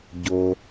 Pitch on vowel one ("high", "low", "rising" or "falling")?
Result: low